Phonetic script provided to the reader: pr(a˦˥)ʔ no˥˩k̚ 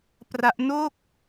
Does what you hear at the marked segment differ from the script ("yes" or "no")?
no